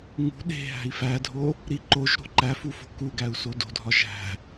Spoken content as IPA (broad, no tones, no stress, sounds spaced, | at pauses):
ŋ ṳ ɗ e̤ ɦ æ̤ i̯ f æ dʱ o | ɾ i ǃ o ʒ ɾ o̤ ǃ æ f u f o̤ k u ɡ æ u̯ s o d o̤ dʱ ɒ ʒ æ̤